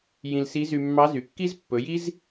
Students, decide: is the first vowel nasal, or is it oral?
nasal